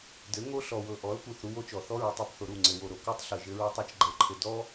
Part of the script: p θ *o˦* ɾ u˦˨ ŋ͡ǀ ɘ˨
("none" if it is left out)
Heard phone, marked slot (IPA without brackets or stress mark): o˨